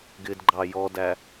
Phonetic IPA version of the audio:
ɡ ɪ d ɡ͡ǃ ɑ j ɔ d æ

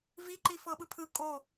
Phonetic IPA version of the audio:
v i ǃ i f ɤ ɓ ɯ pʰ ɯ kʼ o

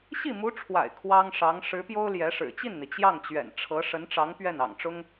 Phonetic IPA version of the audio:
ɕ i˥˩ m u˧˥ ʈ͡ʂʰ w a̰˨˩ ɪ̯ kʰ w ɑ˥ ŋ ʂ ɑ˧˥ ŋ ʂ ɻ̩˧˥ p j o˥ ʊ̯ l j ɛ˧˥ ʂ ɻ̩˨˩ t͡ɕ i˥˩ n n̪ i˩ t͡ɕ j ɑ˥˩ ŋ t͡ɕ ɥ ɛ̰˨˩ n ʈ͡ʂʰ ɤ˧˥ ʂ ə˧˥ n ʈ͡ʂ ɑ˧˥ ŋ p ɥ ɛ˥˩ n ɑ̰˨˩ ŋ ʈ͡ʂ ʊ˥ ŋ

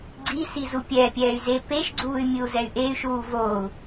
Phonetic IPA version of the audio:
ɡ͡ǀ i s i z u pʲ ɛ pʲ ɛː y̯ z e p e ʃ ɡ͡ǀ uː y̯ mʲ ɯ u̯ z ɛ y̯ ʔ e y̯ ʃ uː v oː u̯

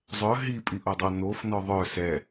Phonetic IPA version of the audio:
zˤ œ ɦ i pʼ i ʔ o dˤ o n̪ o f n ɔ ðˤ œ s ɛ

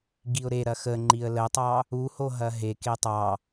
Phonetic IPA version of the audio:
ɡ i ʊ̯ ɾ e ɾ ɐ x ə ŋ͡ǃ i ə̯ l ə tˤ ɑ | u h o ɦ ɐ ɦ e k e tˤ ɑ

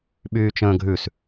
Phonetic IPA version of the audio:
ɓ yː t͡ʃ ə̃ː ɡʱ ʉ s

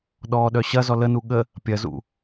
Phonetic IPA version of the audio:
ɗ ɔː ɗ œ ɕ ɐ z ɔ l ə n u ɠ ə | pʲ ɐ z ṵ

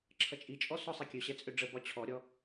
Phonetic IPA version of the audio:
ǁʰ ʌ t͡ʃʼ i t͡ʃʼ ɔ s ɔ sˤ i kʲ ø ɕ ɛ t͡sʼ ø ɖ͡ʐ ə b ɒ t͡ɕʰ ɔ ɾʲ ɔ

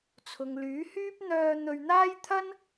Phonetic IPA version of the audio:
t͡sʰ ʊ˨ ŋ l yː˨˥ h yː˥ p̚ n̪ œː˧ n̪ ɵ˧ ɥ n̪ aː˥ j t̪ʰ ɐ˥ n

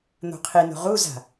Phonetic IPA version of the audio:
n̪ o̤ qʰ i n o̤ ʁ u z a̤

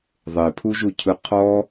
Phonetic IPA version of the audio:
ðˤ e pʰ u ʒ u cʰ ɯ qʰ ɔ

